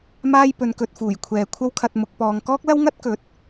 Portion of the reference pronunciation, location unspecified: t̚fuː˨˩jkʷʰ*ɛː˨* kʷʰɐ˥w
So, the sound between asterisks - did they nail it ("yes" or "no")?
yes